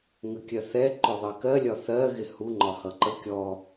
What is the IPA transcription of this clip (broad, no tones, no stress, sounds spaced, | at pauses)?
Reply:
ŋ ə kʲ ɜ θ ɛ ǃ ʊ ðˤ ɜ k ɜ lʲ ɒ θ ɜ ɣ ɪ h u ŋ͡ǃ ɒ h ʌ ǃ ə kʲ ɔ